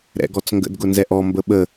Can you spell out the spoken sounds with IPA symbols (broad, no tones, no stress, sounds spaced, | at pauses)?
ɾ ɛ̰ ɡ ɔ t͡s ŋ ɡ ə̰ d ɡ ʊ n z ɛ ʔ ɔ m b ə ɓ ə